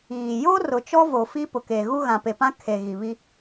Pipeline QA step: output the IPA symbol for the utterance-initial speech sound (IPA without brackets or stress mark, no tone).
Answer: iː